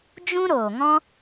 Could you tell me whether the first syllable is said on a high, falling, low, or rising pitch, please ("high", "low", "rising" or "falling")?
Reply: high